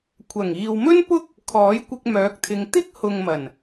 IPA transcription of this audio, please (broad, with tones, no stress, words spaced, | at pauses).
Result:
kʷʰɐ˨˩ŋiː˨wmɵ˥n pʊ˥k̚ | kʰɔː˨˥jkʷɪ˧k̚ mœː˨˥k̚t̪ʰɪ˨˧ŋ t̪ɪ˥k̚hʊ˨ŋmɐ˨˩n